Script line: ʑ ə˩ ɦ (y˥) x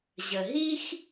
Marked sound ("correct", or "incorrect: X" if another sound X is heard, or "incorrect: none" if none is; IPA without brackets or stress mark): incorrect: i˥